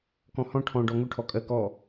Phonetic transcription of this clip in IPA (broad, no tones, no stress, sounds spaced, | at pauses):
k ɔ̃ h ɔ̃ ʈʰ ɔ̃ ɖ ɔ ŋ ʊ ʈʰ ɔ kʼ ɜ k ɔ